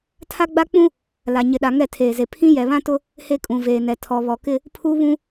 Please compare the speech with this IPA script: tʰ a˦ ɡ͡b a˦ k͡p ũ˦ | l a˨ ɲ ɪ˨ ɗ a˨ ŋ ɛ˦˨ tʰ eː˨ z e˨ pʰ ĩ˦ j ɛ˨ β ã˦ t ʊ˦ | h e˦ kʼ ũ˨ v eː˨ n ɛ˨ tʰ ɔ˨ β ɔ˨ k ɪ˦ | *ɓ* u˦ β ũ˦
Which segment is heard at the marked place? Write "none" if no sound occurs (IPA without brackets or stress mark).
pʰ